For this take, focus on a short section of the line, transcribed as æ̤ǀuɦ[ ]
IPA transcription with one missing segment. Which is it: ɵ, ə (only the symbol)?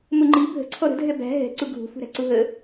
ə